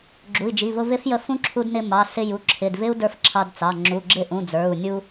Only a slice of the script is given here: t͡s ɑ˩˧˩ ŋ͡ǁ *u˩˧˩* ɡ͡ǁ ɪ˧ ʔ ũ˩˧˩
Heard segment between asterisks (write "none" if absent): u˩˧˩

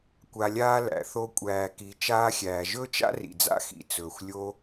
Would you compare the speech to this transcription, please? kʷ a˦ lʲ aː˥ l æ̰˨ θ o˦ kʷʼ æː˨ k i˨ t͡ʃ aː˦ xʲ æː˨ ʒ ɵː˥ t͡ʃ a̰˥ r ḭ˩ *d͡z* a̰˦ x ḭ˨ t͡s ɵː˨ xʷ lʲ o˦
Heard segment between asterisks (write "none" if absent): d͡z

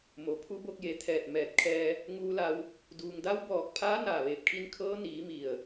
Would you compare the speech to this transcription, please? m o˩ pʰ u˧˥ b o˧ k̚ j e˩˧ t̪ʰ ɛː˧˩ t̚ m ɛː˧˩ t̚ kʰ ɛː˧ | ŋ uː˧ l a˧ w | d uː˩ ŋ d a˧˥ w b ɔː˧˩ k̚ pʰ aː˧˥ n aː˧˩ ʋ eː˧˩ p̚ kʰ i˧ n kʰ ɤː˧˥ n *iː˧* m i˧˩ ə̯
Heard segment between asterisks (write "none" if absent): iː˩˧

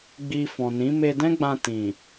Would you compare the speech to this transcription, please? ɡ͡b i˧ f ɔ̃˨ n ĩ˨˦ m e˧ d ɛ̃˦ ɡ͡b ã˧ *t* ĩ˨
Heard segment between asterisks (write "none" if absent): t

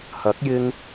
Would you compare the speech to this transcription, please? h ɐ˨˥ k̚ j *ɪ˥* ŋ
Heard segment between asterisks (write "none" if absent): ɪ˧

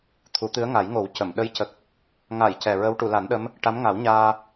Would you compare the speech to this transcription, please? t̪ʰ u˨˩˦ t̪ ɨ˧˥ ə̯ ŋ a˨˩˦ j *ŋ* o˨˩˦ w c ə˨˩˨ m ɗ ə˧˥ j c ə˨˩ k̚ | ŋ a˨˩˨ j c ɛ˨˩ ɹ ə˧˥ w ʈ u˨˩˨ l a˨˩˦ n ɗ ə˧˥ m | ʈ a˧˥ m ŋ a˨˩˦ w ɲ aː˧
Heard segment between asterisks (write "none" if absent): ŋ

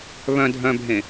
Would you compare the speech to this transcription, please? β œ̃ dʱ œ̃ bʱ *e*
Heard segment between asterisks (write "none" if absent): ẽ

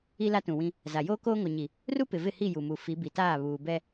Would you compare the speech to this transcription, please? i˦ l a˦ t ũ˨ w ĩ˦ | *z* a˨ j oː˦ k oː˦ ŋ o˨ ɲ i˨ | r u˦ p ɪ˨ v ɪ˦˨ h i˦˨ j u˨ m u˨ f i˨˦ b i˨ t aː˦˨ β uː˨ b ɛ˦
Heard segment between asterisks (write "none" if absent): z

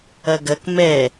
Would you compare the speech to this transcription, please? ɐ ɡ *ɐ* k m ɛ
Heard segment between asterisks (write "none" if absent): ɐ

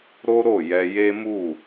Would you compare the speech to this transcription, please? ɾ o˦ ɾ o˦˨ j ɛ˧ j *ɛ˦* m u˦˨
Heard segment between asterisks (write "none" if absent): e˦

